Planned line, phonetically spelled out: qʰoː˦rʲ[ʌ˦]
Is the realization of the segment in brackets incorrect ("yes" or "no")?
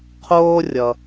yes